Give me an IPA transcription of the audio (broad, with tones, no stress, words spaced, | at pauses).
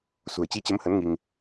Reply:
sṳ˨˩ə̯t͡ɕi˨˦t͡ɕə˨˦mhə˨˦n ŋi˧ŋ